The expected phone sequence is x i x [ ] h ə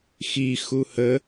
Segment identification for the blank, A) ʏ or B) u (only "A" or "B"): B